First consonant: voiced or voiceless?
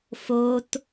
voiceless